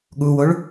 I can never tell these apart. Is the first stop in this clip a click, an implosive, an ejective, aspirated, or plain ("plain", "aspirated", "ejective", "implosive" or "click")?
implosive